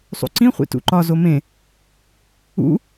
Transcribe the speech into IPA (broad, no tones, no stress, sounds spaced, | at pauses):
sˤ ṵ ǀ ĩ χʷ ḭ t ṵ ǃ ɒ z o m ẽ | ṵ